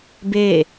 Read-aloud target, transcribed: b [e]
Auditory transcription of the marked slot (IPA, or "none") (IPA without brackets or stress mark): e